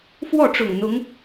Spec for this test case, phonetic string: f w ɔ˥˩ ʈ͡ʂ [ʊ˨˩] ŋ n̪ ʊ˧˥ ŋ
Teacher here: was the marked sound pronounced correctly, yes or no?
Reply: yes